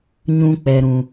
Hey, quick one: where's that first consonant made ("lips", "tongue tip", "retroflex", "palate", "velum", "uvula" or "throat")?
palate